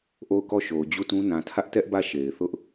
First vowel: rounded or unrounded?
rounded